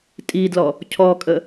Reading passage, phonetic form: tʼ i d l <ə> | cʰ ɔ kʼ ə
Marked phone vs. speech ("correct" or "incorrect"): incorrect